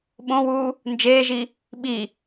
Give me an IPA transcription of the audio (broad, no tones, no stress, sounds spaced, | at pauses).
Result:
ɓ õ w uː | n d͡ʒ eː ʒ i | ɓ i